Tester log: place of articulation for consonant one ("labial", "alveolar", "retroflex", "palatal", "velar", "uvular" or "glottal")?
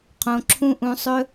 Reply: uvular